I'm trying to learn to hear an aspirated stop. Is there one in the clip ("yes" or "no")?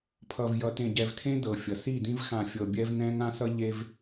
yes